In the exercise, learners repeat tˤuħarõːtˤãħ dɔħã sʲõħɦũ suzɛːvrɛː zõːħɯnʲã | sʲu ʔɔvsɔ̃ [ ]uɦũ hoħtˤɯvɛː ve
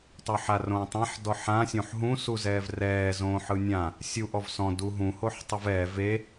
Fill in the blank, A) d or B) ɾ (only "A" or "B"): A